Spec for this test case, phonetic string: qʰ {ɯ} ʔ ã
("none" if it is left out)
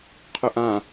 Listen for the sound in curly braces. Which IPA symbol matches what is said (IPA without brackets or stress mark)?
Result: ʊ